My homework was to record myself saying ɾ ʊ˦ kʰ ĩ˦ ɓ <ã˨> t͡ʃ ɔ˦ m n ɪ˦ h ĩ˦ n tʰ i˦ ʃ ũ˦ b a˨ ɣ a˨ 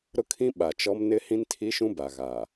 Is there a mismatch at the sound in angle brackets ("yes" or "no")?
yes